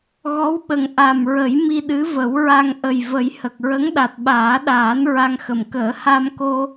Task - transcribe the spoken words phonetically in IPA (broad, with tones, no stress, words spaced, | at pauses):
ɣɔ˧˥wɓə˨˩ŋ ʔa˨˩mɹə˨˩˦j mi˧ɗɨ˧˥və˨˩˦wɹa˧ŋ ʔə˨˩jvə˨˩˦jhə˨˩k̚ ɹə˧˥ŋɗa˨˩t̚ɓaː˨˩˦ɗaː˨˩˦n ɹa˧ŋxə˨˩m kəː˨˩˦ha˧mko˧